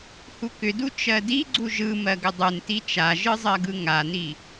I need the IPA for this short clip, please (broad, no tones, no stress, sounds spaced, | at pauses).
h u k ʏ d u t͡ʃ ɜ d i ɡ͡ǀ u ʒ ɯ m ɜ ɡ ʏ dˤ u n t i t͡ʃ a ʒ ɯ zˤ ɜ ɡ ɯ ŋ a n i